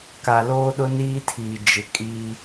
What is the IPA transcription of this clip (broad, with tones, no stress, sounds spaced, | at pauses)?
k a˨ l oː˦ ɗ ʊ˦ n iː˦ tʰ iː˨ d͡ʒ ɪ˨ kʼ iː˦